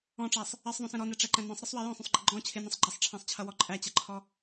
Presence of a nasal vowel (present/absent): present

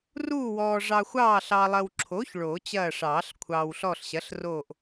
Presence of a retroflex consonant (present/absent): present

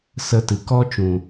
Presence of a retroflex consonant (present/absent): absent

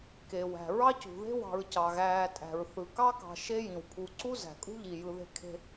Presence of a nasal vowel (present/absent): present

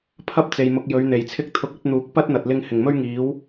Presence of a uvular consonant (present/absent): absent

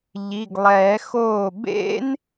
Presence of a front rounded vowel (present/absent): absent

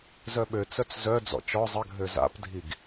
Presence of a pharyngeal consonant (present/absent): absent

